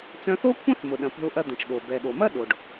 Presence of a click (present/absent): absent